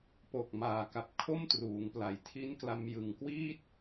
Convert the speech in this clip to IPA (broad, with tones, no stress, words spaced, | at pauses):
po˨˩k̚maː˨˩ka˨˩p̚ kʰo˥˩mtruː˩˦ŋpla˨˩jtʰi˦˥n kla˧mjɯ˨˩ŋkwiː˥˩t̚